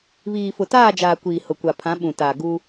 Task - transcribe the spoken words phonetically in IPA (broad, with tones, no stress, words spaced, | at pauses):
βiː˨fʊ˨taː˦˨d͡ʒaː˨ kʷiː˨hʊ˨kʷa˨ pʰã˨˦ ɓũ˨taː˨ ɡu˦